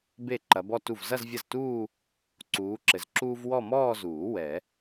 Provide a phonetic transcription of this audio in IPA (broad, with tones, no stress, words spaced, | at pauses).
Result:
be˥˩ ǃɐ˨˦bɔ˥˧tu˥˩v zɐ˥˧zvʲɐ˥˩ztuː˥˧ | ǀuː˨˦ǁɘ˨zǁuː˥v wɔ˥˧mɔː˥˧zuː˨˩˦ wɛ˨˩˦